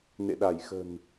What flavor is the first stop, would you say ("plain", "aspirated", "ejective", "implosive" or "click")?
implosive